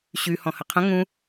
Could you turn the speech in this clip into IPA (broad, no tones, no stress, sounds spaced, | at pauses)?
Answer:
ɕ y h ɔ̃ h ə qʰ ə̃ ŋ ũ